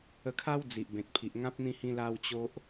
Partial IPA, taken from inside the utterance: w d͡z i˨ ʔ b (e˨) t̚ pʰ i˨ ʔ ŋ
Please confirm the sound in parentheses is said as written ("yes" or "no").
no